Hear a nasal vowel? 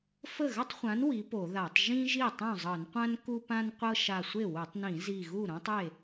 yes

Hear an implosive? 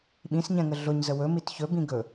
yes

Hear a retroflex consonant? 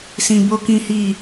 no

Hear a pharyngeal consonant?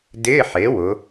yes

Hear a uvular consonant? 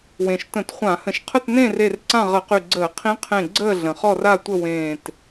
yes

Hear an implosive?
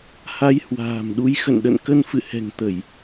yes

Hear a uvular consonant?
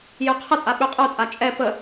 yes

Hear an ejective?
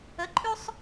yes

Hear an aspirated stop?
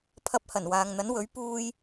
yes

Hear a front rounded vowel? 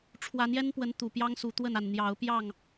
no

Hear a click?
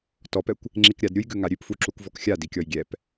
yes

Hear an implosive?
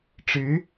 no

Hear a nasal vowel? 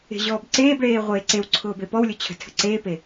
no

